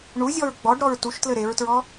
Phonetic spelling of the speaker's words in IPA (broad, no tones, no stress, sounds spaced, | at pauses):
ɳ u zʲ ɔ ɹ ɡ͡b ɔ ɖ ɾ ɔ ɹ t u ʃ t l ɘ ɾ e ɹ t ɹ ɔ